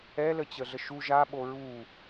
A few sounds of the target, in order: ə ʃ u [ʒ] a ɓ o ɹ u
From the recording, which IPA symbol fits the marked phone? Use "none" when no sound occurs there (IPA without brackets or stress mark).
ʒ